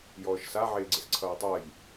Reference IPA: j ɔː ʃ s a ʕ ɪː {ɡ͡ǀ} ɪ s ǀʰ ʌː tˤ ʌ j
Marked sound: correct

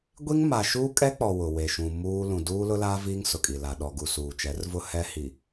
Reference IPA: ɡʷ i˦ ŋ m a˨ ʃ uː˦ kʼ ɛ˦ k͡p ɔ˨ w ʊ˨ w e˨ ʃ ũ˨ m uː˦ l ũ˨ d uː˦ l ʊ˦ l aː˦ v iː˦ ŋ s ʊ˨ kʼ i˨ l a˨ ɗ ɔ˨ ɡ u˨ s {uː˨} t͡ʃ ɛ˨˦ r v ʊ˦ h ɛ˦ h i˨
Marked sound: correct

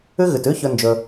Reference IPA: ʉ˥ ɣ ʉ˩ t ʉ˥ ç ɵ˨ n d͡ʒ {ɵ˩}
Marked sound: correct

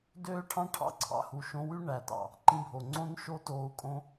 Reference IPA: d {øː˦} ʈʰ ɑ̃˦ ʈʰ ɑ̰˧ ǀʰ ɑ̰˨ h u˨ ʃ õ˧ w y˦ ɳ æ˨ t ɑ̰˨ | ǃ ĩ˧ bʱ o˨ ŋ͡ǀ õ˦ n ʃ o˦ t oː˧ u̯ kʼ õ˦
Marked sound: correct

